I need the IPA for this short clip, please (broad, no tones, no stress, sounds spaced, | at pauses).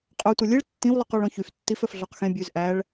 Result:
qʼ œ tʷ ɛ lʲ e ɭ tː ĩ w lˠ ʉ q ɔ ɭ ɔ̃ ç y f tː i f œ f ɮ ɔ q x ẽ bʲ ʉ z ʔ æ ɭ